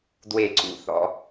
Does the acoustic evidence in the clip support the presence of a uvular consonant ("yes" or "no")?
no